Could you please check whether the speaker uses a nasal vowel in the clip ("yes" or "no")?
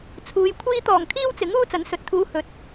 no